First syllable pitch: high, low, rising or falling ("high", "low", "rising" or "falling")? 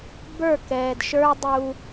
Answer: falling